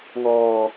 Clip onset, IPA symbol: ŋ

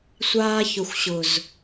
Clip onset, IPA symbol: sʷ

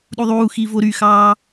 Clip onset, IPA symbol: ɗ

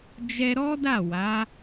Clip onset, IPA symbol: d͡ʒ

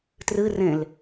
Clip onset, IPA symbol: t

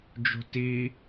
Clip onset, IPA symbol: d͡ʒ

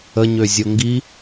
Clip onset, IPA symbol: ə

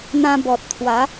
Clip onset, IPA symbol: n̪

